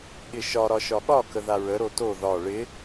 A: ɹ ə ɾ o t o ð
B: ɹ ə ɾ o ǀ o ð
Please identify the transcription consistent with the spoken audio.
A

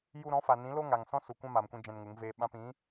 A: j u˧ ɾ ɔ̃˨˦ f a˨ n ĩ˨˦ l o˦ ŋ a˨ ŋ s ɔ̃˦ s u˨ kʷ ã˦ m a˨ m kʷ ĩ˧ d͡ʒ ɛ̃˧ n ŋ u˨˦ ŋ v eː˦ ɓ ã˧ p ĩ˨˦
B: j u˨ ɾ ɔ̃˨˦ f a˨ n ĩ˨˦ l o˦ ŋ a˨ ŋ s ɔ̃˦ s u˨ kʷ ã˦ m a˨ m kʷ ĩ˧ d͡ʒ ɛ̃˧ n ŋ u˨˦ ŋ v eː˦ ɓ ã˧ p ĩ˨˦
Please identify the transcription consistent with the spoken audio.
A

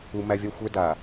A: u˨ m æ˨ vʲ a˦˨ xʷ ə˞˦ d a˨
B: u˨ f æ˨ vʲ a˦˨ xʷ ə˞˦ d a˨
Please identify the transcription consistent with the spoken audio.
A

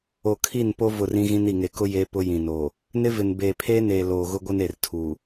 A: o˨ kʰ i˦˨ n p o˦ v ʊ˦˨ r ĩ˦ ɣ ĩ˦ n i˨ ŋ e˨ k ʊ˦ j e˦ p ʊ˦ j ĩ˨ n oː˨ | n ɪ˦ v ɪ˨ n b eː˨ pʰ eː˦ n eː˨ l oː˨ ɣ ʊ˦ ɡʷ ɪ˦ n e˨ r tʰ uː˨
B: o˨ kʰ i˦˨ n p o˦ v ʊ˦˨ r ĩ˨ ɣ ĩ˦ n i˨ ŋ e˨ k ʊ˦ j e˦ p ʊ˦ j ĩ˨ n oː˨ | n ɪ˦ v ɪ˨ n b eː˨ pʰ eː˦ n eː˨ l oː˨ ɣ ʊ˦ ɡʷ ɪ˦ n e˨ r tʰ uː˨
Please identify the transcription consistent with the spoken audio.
A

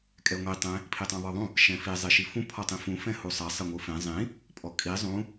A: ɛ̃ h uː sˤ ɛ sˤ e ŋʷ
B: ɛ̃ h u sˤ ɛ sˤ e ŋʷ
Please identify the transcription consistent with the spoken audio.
B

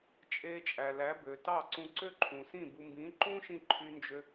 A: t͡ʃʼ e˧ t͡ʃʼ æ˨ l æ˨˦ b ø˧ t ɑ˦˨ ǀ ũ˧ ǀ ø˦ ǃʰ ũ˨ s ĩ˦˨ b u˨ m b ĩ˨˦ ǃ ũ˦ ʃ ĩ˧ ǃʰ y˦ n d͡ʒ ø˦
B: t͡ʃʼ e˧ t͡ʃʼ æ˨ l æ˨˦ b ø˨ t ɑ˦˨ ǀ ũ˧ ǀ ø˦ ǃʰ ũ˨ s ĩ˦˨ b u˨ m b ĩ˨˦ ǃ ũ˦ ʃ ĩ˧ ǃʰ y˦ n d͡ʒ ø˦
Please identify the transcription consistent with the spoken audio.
B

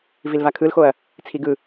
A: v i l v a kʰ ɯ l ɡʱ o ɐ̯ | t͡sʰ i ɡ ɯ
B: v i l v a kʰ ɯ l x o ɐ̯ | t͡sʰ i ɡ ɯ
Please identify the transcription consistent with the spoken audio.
B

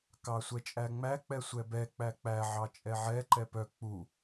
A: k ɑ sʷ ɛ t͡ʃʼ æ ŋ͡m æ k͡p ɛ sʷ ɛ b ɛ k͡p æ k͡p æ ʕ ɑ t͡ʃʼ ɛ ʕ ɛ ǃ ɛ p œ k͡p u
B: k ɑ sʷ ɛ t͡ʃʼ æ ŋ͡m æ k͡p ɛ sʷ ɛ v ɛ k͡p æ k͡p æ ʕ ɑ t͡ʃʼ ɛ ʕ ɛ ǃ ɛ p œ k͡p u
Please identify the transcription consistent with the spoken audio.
A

